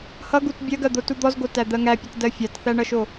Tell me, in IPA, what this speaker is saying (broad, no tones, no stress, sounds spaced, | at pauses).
h ʌ ɡ u t bʲ ɜ ɡ ɜ d̪ o t u d̪ ɔ z ɡ o t æ d̪ ɜ ŋ æ pʲ ʌ t d ɜ fʲ a t θ æ ɳ ʌ ʃ o